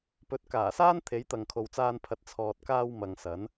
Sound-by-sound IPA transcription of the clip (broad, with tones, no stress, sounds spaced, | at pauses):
p ɵ˨˥ t̚ k aː˨˩ s aː˥ n t̪ʰ e˨˥ j t̪ ɐ˨ ŋ kʰ o˨ w t͡s aː˧ n pʰ ɐ˨ t̚ t͡sʰ ɔː˨ t̚ k aː˧ w m ɐ˨ ŋ s ɐ˨˥ n